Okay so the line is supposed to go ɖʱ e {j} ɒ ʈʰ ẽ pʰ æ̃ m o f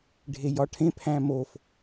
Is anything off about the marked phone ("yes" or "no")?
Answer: no